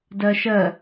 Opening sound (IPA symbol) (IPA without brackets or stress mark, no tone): d